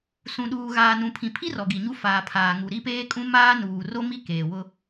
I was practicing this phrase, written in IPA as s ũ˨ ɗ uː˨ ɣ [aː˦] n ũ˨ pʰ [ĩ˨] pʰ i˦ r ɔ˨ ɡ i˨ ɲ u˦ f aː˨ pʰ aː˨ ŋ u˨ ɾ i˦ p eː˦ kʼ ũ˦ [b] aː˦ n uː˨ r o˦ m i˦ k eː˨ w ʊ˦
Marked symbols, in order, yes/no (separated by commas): no, yes, no